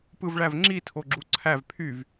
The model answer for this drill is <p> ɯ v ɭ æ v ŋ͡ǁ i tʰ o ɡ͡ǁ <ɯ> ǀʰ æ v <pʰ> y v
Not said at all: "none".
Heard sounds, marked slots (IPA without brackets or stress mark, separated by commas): p, u, pʰ